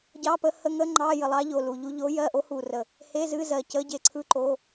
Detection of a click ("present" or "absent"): present